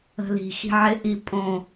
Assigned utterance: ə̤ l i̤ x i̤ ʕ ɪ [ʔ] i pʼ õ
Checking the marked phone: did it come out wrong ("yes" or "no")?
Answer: no